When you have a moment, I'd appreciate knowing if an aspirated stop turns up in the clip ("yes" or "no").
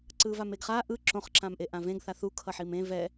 yes